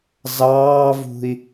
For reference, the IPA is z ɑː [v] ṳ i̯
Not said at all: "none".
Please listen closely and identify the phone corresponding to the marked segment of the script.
v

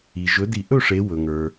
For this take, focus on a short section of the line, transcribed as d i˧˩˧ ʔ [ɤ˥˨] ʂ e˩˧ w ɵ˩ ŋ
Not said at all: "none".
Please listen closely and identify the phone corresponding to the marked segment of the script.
ɵ˥˨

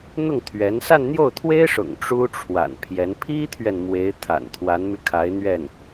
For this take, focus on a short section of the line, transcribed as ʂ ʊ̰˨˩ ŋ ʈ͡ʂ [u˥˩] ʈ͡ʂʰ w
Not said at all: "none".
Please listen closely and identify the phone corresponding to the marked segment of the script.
u˥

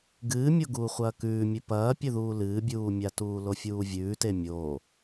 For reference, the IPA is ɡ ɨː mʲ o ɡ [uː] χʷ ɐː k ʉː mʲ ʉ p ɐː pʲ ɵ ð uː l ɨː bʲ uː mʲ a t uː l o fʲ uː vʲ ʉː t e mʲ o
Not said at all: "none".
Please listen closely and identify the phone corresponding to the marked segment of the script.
uː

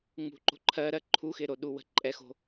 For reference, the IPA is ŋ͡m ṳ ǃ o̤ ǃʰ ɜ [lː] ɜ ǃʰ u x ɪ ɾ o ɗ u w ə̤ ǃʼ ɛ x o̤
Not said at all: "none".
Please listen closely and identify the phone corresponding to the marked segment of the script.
ɾ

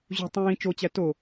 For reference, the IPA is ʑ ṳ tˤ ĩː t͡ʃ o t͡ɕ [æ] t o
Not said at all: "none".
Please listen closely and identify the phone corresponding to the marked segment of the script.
æ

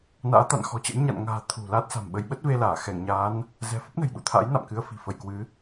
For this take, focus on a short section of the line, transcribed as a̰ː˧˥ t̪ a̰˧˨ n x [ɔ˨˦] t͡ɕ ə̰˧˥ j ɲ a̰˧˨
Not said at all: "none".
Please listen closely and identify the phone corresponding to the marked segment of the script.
ɔ̤˨˩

